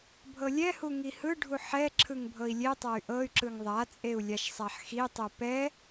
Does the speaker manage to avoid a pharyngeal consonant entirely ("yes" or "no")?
no